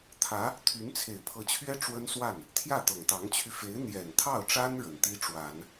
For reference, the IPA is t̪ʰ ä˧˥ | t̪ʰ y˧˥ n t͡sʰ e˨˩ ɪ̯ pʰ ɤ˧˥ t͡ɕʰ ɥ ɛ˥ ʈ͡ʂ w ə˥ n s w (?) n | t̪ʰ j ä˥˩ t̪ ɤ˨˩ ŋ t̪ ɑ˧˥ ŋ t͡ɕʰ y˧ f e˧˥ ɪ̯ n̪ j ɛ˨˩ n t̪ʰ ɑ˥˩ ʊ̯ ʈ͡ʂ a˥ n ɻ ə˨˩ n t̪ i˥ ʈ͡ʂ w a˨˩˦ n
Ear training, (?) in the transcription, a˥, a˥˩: a˥˩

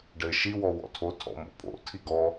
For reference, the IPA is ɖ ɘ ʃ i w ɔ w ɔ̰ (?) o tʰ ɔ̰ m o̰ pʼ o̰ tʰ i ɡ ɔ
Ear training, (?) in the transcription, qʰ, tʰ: tʰ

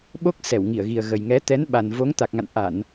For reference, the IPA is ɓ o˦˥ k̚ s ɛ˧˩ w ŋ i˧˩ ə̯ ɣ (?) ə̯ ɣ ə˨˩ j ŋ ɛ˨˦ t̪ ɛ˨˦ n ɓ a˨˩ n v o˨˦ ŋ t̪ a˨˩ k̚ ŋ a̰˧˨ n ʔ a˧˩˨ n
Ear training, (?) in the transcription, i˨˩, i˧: i˨˩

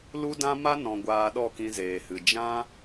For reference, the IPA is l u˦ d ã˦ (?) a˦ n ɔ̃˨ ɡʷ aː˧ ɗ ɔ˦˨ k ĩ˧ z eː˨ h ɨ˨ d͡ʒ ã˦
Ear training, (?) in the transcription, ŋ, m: m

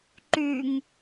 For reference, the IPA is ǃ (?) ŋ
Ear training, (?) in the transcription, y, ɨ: y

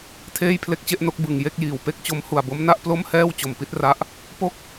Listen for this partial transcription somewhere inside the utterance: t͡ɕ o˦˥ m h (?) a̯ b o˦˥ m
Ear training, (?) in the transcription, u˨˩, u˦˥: u˨˩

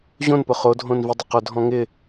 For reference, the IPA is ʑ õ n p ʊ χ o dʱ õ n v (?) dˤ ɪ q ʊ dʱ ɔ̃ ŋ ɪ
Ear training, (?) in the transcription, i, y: i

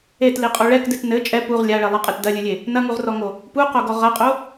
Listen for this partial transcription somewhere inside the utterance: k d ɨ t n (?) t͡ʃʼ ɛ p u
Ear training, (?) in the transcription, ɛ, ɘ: ɘ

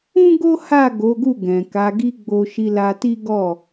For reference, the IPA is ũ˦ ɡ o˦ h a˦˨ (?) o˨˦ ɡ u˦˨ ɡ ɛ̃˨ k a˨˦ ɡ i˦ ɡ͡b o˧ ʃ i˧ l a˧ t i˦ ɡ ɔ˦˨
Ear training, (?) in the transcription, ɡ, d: ɡ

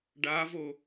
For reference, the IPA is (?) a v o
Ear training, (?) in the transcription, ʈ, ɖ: ɖ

